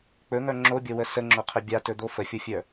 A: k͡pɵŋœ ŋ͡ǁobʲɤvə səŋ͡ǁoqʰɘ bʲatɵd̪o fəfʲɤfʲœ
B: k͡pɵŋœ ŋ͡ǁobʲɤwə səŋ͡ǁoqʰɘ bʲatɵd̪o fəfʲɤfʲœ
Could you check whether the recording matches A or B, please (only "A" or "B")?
B